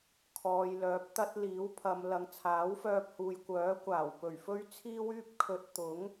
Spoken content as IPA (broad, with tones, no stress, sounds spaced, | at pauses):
kʰ ɔː˨ j l œː˨˥ p̚ t̪ ɐ˥ t̚ l iː˨˥ w pʰ ɐ˨˧ m l ɐ˨ ŋ t͡sʰ aː˨˥ w f œː˧ p̚ h uː˨ j kʷ œː˨˥ kʷ aː˨˩ w p ɵ˨˩ ɥ f ɵ˥ ɥ t͡sʰ iː˥ w yː˥ p̚ kʰ ɵ˧ t̚ t̪ ʊ˨˥ ŋ